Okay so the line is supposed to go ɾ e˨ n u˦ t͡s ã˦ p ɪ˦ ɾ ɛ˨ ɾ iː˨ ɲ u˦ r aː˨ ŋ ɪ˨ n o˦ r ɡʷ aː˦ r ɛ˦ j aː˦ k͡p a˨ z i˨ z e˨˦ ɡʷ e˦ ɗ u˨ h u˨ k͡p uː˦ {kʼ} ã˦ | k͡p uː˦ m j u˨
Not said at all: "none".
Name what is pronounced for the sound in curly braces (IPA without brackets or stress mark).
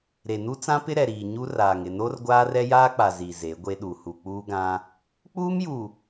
ɡ